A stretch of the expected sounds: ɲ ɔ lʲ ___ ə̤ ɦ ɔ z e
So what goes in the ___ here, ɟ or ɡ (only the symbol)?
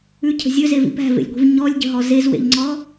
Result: ɟ